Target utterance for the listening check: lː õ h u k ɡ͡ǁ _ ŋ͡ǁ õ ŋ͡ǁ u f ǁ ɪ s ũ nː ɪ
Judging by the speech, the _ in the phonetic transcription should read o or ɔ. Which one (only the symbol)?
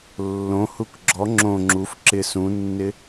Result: ɔ